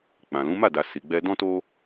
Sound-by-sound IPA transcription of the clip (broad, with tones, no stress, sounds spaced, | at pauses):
k͡p ã˨ l ũ˨˦ m a˦˨ d a˨ s i˨ ɡ͡b ɛ˧ d ɔ̃˦ t o˦